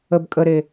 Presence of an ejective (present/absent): present